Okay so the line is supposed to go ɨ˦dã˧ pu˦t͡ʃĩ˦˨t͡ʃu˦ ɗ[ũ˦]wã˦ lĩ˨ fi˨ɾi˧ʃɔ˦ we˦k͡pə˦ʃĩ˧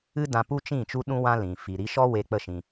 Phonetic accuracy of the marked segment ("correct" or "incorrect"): correct